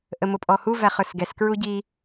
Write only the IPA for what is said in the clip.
ʔ ə m ʊ pʼ ɔ h u v æ χ ə˞ s ɡ ɛ s k ɹ u ɟ i

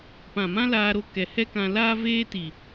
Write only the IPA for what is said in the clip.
p ã˨ m ã˦ l aː˧ ɾ o˧ k ɛ˨ h ɛ˦ k ã˧ l aː˦ v eː˦ t i˨

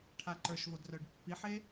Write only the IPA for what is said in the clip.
ʈʰ a ǃ ə˞ ʃ v o d r œ ɖ pː i ħ e

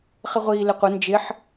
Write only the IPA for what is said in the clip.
χ ɪ ʁʷ iː l ɪ qʷ ʌ n d͡ʒ ɪ ħ

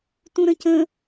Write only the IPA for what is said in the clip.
t ũ ɾ ə̃ c ə̃

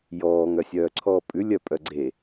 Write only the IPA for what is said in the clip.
j ɔː ŋ œ sʲ œː ǀʰ ɔː pʼ ʉ lʲ œ pʼ œ ɡ͡ǀ e

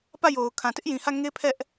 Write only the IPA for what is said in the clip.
p ä˦˨ j o˨ ʊ̯ kʰ ã˨ t ɪ˦ ʔ j ĩ˨ h ä˦˨ ŋ e˦ pʰ ɛ˦ ʔ

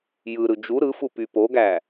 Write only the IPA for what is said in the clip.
j ɯ ɾ ɯ d͡ʒ u ɾ ɯ f u p y p o ɡ æ

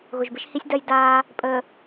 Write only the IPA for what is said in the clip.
ɣ ʊ˨ ʒ b ɪ˦ ʃ h i˦ sʲ d ɜ˦ j d aː˦ | pʼ əː˨

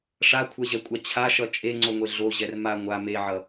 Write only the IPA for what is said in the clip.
ʂ a kʷʰ ɛ ʑ ɛ kʷʼ a t͡ɕʰ a ʃ ʌ t͡ʃʼ e ŋ͡ǀ o ŋʷ e ɮ o ʑ ɛ r m a ŋʷ a m e ʕ ʌ

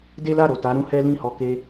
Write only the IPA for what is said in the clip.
d e˦ l a˦˨ ɾ o˨ t a˨˦ ɾ ũ˦ h ɛ˦ l ĩ˦˨ h ɔ˧ k e˦

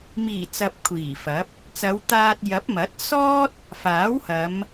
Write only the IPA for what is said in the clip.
m iː˨˩ t͡s ɐ˧ p̚ kʷʰ iː˨˩ f ɐ˨˥ p̚ | t͡s ɐ˨˧ w t̪ aː˧ t̚ j ɐ˨˥ p̚ m ɐ˨˥ t̚ s ɔː˥ t̚ | f aː˨˥ w h ɐ˨˧ m

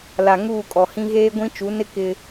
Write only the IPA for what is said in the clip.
l a˨ ŋ uː˦˨ kʼ ɔ˨ h ĩ˦ ɣ eː˦ ɡʷ ĩ˦ t͡ʃ u˨˦ n ɪ˦ k ɪ˦

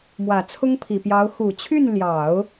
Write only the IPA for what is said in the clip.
m w ä˨˩ t͡sʰ ʊ˥ ŋ pʰ i˨˩ p j ɑ˧˥ ʊ̯ x u˨˩ t͡ɕʰ y˥˩ n l j ɑ˨˩˦ ʊ̯

